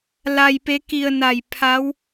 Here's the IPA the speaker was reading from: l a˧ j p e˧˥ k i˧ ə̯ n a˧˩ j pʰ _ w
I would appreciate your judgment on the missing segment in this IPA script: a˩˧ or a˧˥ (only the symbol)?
a˧˥